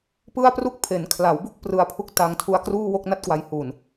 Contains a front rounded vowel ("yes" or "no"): no